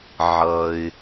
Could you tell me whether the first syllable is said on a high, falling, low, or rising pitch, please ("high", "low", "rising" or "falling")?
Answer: low